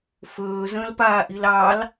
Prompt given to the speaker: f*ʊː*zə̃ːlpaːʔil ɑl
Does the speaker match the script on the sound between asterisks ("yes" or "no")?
no